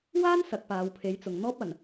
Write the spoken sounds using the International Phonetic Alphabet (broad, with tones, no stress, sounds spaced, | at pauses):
w aː˥ n s ɐ˨˥ k̚ p aː˨˧ w pʰ e˨˥ j t͡s ʊ˨ ŋ n̪ ɔː˥ p̚ ɐ˨˩ n